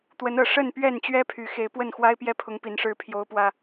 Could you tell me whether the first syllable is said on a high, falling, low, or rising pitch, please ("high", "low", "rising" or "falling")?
rising